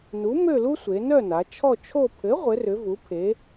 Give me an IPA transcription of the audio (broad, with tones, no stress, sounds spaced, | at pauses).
n u˨˥ m ø˥˧ l u˥ sʷ e˩˧ n œ˥˧ n a˩˧ t͡ʃʰ ɔ˥˧ t͡ʃʰ o˥˧ pʰ ɘ˨˥ ʁʷ ɘ˨˥ r ʏ˨˥ v u˨˥ pʰ e˨˥